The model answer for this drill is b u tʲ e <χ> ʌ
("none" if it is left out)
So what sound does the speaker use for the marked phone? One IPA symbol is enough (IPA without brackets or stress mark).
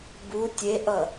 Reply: ʔ